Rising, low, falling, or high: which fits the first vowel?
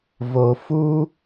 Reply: low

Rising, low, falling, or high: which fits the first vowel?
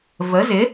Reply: rising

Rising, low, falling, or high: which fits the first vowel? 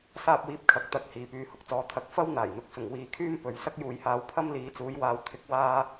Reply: high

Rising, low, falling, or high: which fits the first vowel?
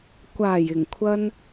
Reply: low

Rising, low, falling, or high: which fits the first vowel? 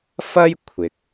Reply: high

